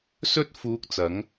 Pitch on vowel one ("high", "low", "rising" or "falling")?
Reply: high